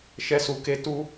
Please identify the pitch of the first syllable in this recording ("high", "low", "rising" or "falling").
high